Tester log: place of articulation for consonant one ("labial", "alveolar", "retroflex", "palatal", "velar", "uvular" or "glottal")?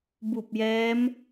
labial